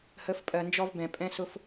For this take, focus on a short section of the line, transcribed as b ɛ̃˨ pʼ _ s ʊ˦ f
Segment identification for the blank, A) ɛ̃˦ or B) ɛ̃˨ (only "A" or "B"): A